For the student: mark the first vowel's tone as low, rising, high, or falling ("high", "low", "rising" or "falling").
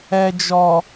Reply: low